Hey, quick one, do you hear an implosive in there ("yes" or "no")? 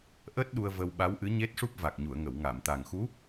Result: yes